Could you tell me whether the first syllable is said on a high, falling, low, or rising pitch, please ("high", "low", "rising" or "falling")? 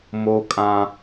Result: high